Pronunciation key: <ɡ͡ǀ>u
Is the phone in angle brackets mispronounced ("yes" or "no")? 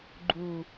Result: yes